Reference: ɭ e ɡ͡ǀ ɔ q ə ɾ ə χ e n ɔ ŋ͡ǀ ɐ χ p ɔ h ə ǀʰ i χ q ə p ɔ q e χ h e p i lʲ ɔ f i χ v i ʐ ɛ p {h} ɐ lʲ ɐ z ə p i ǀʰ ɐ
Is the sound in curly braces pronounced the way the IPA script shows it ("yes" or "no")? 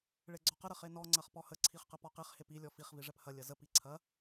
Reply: yes